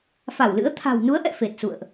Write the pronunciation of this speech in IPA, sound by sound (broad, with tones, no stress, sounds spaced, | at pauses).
f a˧˩ w l ɨ̰˧˥ ə̯ t̪ʰ a̤˨˩ w n u˨˦ ə̯ ʔ ɛ̰˧˨ f e˨˩ t̚ s ṵ˧˨ ə̯ ʔ